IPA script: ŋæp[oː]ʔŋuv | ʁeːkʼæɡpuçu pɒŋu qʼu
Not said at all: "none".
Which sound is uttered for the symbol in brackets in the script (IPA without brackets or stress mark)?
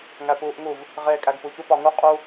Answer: uː